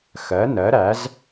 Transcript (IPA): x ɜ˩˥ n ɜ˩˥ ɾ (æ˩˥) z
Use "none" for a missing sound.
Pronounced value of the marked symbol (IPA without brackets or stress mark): æ˩˥